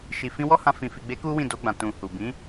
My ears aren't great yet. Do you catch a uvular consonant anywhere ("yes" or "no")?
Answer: no